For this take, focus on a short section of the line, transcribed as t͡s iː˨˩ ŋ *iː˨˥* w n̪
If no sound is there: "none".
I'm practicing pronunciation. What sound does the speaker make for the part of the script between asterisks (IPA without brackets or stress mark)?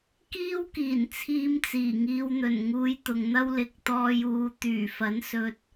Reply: iː˧